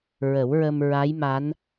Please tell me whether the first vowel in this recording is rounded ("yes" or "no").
no